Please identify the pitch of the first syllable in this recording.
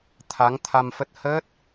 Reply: rising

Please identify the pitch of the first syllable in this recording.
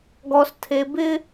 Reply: low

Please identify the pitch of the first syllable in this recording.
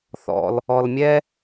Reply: low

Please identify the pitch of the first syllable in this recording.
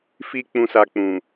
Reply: low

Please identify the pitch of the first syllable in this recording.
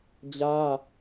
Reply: high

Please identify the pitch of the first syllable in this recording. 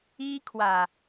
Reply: high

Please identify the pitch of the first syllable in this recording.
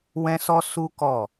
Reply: high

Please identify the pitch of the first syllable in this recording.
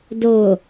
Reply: low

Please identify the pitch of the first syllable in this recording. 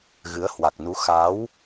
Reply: rising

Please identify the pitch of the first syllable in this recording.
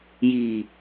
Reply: low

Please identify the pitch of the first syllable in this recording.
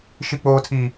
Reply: high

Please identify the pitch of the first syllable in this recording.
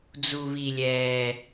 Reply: low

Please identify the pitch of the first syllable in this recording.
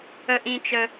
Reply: high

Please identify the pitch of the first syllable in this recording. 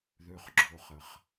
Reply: low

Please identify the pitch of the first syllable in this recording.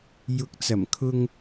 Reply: rising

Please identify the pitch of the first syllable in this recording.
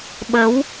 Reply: rising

